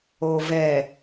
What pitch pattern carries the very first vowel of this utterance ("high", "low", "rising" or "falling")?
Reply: low